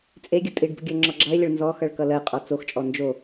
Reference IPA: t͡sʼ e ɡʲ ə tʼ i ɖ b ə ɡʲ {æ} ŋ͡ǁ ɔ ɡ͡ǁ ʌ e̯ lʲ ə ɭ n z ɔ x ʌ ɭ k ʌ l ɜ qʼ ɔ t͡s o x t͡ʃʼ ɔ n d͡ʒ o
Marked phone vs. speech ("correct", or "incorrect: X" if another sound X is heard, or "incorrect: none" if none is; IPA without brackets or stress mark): incorrect: ɜ